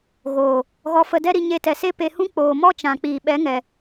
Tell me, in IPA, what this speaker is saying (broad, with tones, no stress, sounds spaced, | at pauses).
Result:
ɣ oː˨ | ɣ ɔ˧ f ə˧ d ɛ˦ ɾ i˧ ɲ e˧ t ɛ˨ s e˦ p e˧ h ũ˦ k͡p oː˨ m ɔ˦ t͡ʃ ã˨ k͡p iː˨ ɓ ɛ˨˦ ŋ ɛ˨